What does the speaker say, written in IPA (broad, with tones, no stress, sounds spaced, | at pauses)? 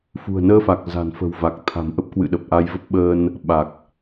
f ṳ˨˩ ə̯ n əː˧ f a˨˩ k̚ z a̤˨˩ n f ə̤˨˩ w v a˨˩ k̚ t̪ʰ a̤˨˩ m ʔ ə˦˥ p̚ k w ɨ̰˧˨ ɗ ə˨˩ p̚ ʔ a˧ j v ə˦˥ p̚ ɓ əː˧ n | ɓ a˨˩ k̚